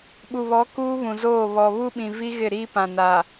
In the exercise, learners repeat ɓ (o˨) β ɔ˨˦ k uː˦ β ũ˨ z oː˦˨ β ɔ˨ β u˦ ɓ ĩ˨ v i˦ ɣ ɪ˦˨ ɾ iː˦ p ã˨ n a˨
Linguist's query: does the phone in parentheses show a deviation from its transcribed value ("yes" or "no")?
yes